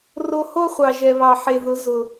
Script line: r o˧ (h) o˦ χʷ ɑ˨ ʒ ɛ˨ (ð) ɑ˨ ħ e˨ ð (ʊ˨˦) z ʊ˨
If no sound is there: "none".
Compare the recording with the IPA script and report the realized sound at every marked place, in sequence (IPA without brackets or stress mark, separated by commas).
h, β, ʊ˨˦